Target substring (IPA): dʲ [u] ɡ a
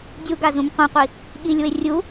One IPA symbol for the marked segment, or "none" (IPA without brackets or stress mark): u